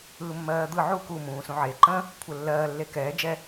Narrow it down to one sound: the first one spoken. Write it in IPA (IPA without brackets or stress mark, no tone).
ɯː